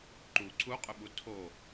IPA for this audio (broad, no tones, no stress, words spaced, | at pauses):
ǃu ǀʰuqʼʏɓu tʰo